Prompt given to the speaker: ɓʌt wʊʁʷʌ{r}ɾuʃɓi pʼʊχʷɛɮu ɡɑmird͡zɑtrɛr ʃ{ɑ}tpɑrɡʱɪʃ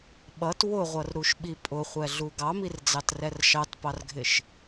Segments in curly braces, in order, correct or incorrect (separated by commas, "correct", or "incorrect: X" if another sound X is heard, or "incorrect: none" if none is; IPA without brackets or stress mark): correct, correct